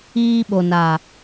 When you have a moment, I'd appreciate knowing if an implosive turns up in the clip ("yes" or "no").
yes